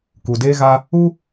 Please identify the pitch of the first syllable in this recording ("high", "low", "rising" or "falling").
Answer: low